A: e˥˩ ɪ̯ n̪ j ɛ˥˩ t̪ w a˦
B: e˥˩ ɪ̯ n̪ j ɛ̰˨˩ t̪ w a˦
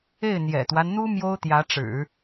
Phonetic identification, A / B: B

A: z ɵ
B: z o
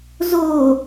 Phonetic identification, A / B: B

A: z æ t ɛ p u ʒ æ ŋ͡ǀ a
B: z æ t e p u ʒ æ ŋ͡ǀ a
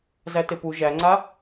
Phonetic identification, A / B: B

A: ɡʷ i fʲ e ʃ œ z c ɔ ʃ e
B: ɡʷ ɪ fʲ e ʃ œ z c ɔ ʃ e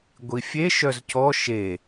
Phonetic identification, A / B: A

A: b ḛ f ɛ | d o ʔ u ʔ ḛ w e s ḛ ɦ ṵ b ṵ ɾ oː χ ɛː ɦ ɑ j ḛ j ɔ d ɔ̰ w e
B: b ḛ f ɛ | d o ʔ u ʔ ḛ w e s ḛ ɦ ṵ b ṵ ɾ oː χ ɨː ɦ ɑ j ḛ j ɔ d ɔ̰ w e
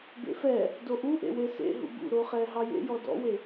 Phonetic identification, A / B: A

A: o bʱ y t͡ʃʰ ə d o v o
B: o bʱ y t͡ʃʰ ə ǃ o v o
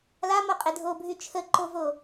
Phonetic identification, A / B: B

